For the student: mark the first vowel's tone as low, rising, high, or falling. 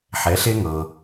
rising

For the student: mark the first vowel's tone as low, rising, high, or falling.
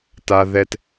low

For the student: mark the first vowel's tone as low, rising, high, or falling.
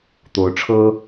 rising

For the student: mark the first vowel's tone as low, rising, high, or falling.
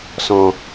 low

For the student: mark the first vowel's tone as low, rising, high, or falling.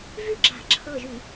falling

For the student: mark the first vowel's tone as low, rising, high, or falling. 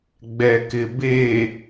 low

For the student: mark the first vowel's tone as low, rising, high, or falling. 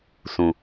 low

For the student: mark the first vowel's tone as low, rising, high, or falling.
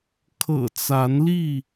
low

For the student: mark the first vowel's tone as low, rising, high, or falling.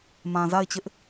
low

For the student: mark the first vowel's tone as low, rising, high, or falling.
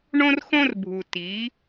high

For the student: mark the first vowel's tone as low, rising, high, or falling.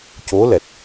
rising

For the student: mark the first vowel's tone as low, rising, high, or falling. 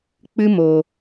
high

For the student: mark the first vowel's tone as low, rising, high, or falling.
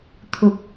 low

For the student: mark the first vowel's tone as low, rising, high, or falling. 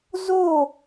falling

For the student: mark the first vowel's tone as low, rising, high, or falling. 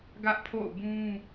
high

